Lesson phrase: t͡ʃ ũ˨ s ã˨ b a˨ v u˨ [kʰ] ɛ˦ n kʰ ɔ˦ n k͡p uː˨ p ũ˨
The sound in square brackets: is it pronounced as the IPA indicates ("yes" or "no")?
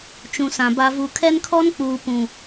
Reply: yes